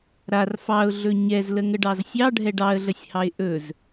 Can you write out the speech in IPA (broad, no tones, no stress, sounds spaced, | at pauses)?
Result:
ɾ a r f ɑ ʊ̯ ɮ ɵ ɲ ɛ z l ə ŋ ə ɖ ɑ z sʲ ɑ ɖʱ ɛ ɖ ɑ ə̯ ɮ ə sʲ h ɑ ɪ̯ ʔ ɵ z